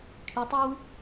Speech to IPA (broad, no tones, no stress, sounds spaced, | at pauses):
kʰ y tˤ o w